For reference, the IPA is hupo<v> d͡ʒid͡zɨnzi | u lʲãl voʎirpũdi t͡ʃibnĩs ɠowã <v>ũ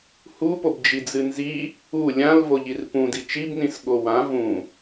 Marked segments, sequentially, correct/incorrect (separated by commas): incorrect, correct